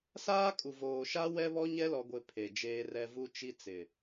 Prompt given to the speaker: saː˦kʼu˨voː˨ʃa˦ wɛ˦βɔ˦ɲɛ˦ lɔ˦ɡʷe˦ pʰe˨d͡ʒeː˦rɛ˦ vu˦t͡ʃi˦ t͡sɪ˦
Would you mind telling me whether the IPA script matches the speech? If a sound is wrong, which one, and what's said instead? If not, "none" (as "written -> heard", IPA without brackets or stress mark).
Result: ɪ˦ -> ɪ˨